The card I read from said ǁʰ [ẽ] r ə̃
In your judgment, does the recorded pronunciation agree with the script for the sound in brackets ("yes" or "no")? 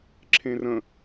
yes